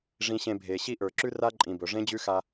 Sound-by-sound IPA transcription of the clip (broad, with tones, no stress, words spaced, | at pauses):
ʐĩ˨ɕẽ˨ bʱe˨ɕi˦ ʔə˞˨ǁʉ˦ra˦ ǃʼĩ˨bɵ˨ ʐẽ˦d͡ʑʉ˦xa˦